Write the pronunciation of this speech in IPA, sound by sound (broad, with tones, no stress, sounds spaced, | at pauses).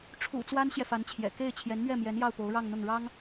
ʈ͡ʂʰ ṵ˨˩ t͡s w a˥ n ɕ j ɛ˨ f a˧˥ n t͡ɕʰ j ɛ̰˨˩ k e˥˩ ɪ̯ t͡ɕʰ j ɛ˧˥ n m ɥ ɛ˥˩ m j ɛ˧˥ n j ɑ˥˩ ʊ̯ p o˧˥ ʊ̯ ɻ ɑ˥˧ ŋ n̪ ʊ˥˩ ŋ ɻ ɑ˥ ŋ